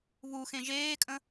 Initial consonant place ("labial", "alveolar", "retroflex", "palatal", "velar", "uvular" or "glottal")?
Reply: labial